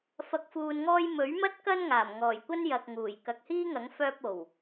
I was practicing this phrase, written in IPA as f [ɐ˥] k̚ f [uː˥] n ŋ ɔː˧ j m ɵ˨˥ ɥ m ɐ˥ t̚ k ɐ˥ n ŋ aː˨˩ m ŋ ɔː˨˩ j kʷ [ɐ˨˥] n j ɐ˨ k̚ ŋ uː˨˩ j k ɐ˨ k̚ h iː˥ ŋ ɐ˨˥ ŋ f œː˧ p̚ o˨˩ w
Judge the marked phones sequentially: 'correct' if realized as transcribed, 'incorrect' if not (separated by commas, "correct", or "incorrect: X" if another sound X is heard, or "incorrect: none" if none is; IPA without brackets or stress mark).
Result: incorrect: ɐ˨, incorrect: uː˨, incorrect: ɐ˥